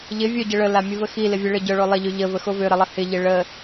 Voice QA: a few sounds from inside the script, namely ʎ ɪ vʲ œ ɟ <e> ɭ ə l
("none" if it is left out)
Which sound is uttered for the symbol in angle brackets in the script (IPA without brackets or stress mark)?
ɘ